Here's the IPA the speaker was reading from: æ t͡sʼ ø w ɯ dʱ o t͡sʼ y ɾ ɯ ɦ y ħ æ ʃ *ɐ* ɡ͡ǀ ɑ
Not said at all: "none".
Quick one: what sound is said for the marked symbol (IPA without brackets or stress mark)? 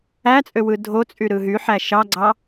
ɑ